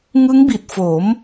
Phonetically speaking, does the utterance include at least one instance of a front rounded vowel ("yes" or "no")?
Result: no